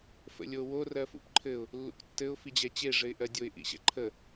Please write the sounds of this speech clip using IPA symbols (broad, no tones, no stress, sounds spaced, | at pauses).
f ə̰ lʲ o w o r ɜ f ṵ p ǃʰ ɘ ʊ̯ | lː ṵ k tː ɘ ʊ̯ f i d͡ʑ ɛ t͡ɕ e ʐ ɘ ɪ̯ ʔ ɜ dʲ o ɪ̯ ʔ ḭ ɕ ɛ̰ ǃʰ ə